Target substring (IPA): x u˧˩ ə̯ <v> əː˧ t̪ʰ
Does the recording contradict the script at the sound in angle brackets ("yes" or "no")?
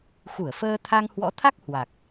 yes